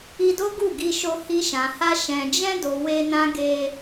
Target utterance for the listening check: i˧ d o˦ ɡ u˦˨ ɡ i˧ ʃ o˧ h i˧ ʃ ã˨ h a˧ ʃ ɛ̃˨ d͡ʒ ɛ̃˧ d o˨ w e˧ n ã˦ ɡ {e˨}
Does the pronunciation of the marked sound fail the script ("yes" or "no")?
yes